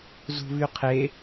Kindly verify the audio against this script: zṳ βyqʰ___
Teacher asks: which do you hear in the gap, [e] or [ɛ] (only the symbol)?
e